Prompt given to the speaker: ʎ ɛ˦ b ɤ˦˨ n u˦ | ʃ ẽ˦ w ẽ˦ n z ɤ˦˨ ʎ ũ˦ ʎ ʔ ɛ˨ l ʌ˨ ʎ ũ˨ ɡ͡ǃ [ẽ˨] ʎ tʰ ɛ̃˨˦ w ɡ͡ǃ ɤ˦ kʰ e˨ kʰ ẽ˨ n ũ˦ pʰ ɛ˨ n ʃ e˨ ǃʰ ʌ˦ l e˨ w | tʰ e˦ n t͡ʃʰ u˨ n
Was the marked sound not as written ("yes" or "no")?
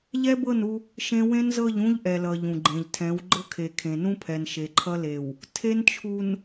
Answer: no